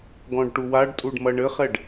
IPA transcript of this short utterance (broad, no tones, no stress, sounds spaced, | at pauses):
ɡ ɔ̃ ɖ ʈ u w a ɖ tʼ u ɖ m ɐ ɳ ɘ χ ɛ ɖ